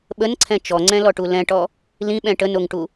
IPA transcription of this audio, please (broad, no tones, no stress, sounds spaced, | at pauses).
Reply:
ɓ ə n ǀʰ ɛ̃ t͡ʃ ɔ ŋ͡ǀ ɛ̃ l ɔ ʈ u l ɛ̃ ʈ ɔ | l ĩ ɓ ɛ̃ ʈ ə n o ŋ ʈ u